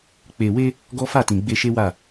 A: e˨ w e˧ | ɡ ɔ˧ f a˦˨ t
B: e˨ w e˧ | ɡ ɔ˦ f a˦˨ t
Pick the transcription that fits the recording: B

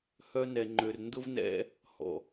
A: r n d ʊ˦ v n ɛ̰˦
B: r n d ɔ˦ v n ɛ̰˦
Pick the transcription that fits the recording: A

